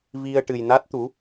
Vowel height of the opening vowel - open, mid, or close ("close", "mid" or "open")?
close